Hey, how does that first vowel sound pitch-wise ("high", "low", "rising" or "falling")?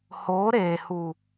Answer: rising